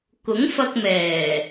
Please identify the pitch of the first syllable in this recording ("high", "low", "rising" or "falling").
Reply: rising